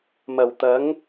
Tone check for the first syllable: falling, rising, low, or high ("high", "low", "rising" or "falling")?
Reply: low